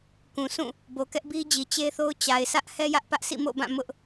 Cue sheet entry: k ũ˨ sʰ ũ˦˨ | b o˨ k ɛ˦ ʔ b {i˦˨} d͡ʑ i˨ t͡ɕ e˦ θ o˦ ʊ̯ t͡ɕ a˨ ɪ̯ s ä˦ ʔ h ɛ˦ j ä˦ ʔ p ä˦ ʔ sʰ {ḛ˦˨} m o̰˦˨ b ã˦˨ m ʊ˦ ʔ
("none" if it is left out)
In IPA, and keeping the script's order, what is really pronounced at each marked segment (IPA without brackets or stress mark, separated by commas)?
i˦, ḭ˦˨